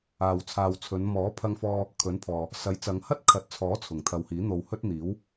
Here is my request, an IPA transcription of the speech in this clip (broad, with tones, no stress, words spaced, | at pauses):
aː˨wt͡sʰaː˨wt͡sʰɵ˨˧n mɔː˨˥ pʰɐ˧ŋfɔː˧ | kʰɵ˨˥npʰɔː˨ | sɐ˨˥jt͡sɐ˨˧ŋ hɐ˥t̚kʰɐ˨t̚t͡sʰɔː˨˥ t͡sʰʊ˨˩ŋt̪ʰɐ˨whiː˨˥ n̪o˨whɵ˥t̚n̪iː˨˥w